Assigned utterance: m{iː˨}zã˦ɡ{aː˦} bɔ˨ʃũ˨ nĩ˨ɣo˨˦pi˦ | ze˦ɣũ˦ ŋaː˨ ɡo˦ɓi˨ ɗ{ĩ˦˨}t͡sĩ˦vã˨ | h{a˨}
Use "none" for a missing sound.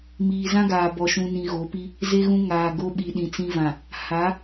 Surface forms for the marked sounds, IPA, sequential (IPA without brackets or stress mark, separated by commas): iː˨, aː˨, ĩ˨, a˨˦